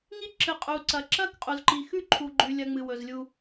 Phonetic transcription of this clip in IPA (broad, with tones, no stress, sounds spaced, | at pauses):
ŋ i˦ ǁ ɨ˨ qʼ u˨ ǀ ɐ˨ ǁ ɐ˦ k qʼ u˨ z ǃ i˨ x ʉ˦ ǃʰ u˨ ɡ͡ǃ ʉ˨ lʲ ɐ˧ ŋ͡m ɨ˨ w ɵ˨ z lʲ u˧